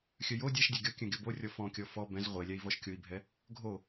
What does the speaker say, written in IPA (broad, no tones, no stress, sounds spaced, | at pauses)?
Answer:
xʲ œ j o dʲ æ ʃ dʲ ɛ ɡʲ ɔ kʲ œ̃ ɡʲ ɔ b o rʲ ɔ f ɔ̃ kʲ ɔ f ɔ b ɛ̃ z ʁʷ e lʲ æ i̯ v ɔ ʃ kʲ o i̯ bʱ ɛ | ɡʱ o